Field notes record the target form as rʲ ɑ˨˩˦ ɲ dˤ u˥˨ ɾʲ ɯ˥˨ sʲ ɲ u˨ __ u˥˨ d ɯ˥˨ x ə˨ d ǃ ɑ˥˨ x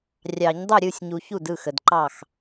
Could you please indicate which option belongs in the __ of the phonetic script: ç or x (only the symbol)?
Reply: ç